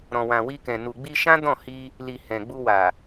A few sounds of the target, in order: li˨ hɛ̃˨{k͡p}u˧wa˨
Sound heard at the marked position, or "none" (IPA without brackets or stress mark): ɡ͡b